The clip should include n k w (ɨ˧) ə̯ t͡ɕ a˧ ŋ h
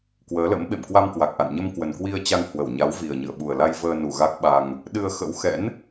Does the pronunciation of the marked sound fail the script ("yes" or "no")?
yes